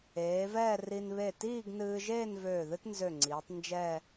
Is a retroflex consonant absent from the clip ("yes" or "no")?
yes